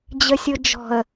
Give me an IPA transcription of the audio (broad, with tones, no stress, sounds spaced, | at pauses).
d͡ʑ ə˨ sʲ ʊ˨ d͡ʒ ɔ̤˨ ə̯